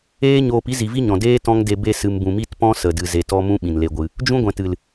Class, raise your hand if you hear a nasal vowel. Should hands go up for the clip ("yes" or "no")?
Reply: yes